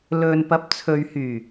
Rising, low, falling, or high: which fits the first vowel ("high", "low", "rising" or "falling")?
low